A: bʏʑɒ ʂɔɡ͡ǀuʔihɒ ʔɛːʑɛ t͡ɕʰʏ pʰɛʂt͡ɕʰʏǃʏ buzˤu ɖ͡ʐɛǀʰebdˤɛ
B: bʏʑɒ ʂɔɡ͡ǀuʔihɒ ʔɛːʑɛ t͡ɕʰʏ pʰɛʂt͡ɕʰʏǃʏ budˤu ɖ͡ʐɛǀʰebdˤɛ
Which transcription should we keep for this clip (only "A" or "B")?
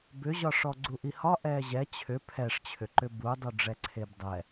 B